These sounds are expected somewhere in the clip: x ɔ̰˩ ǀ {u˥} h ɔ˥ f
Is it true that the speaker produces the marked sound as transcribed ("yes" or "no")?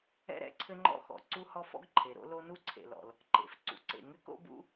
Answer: yes